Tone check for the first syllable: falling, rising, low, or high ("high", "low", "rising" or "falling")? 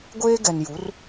high